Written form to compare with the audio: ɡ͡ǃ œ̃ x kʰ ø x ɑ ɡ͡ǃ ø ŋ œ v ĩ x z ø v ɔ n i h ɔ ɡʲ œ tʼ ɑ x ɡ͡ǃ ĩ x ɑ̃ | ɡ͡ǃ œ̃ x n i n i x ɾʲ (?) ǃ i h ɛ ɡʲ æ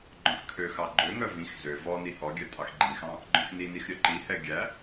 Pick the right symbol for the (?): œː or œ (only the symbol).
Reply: œ